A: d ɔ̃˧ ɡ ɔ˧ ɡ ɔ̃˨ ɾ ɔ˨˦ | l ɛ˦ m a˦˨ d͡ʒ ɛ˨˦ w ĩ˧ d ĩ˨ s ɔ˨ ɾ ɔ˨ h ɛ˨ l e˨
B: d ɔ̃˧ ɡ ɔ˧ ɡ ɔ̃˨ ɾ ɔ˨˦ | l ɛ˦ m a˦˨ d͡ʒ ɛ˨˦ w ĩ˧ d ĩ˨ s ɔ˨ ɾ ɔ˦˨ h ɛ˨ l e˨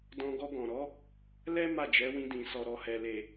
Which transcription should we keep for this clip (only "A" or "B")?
A